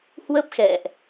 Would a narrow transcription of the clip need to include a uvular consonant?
no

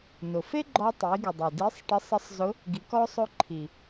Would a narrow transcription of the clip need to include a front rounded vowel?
no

